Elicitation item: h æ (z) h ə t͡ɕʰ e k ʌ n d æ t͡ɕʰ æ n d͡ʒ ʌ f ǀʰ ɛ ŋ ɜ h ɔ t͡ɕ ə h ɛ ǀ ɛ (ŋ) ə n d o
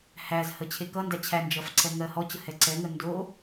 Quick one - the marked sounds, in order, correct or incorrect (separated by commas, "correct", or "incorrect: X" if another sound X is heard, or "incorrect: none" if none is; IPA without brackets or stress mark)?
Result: correct, correct